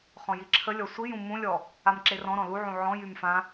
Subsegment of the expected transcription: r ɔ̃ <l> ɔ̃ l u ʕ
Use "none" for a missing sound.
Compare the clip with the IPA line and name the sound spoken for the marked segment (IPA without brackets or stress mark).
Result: ɾ